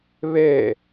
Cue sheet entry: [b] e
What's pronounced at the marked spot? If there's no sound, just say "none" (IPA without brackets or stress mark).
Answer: β